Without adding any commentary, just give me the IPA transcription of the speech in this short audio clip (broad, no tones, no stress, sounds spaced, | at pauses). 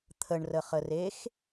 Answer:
t̪ʰ ə ɳ r ə χ ə r e x